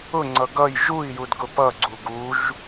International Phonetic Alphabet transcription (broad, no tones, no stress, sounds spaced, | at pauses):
ʊ ŋ͡ǀ ʌ ɡ ʌ j ʒ u i̯ j u d ɡ ʊ p ʌ ɡ͡ǀ u ɡ u ʒ